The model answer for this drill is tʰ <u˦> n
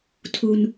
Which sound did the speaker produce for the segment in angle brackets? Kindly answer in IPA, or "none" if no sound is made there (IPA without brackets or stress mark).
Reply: u˦